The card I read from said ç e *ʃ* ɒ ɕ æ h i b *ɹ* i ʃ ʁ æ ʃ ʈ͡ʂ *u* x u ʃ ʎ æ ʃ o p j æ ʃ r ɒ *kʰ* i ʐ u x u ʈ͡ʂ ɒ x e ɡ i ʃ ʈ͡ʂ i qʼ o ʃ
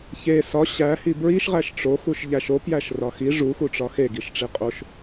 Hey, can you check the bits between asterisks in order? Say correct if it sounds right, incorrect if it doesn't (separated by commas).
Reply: incorrect, correct, incorrect, incorrect